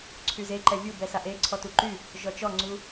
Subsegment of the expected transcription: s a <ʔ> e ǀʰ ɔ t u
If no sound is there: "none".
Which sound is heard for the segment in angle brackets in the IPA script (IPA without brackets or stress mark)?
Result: ʔ